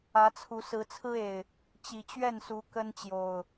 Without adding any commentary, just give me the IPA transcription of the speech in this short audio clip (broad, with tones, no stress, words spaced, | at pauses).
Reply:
ä˨˦t͡sʰu˨˦ sɹ̩˨˦t͡sʰɹ̩˦e˨˩ɪ̯ | t͡ɕi˨˩t͡ɕɥɛ˥˨nsu˨˦ kə˦nt͡ɕjo˨˩ʊ̯